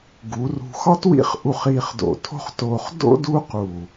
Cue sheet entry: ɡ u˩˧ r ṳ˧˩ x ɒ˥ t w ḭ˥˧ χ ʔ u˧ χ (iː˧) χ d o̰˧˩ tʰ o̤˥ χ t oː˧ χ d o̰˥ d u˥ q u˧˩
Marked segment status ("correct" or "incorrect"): correct